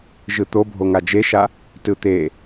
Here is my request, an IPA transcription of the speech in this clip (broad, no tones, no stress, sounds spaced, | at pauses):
ʒ ɯ t̪ o bʱ o ŋ a d͡ʒ e ʃ a | t ɯ t̪ e